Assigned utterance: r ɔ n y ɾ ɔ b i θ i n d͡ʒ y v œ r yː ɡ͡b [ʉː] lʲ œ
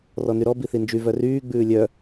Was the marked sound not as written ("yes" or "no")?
no